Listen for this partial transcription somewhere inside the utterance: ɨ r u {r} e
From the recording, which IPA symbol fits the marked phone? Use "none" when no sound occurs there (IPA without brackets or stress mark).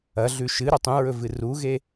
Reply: ɣ